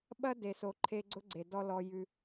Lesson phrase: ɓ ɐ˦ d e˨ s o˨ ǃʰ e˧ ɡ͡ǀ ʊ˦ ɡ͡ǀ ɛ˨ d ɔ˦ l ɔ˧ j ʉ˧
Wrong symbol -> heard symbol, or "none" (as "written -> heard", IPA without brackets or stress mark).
ɛ˨ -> e˨